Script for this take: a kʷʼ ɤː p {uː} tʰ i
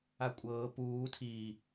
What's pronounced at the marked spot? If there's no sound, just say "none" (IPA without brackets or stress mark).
uː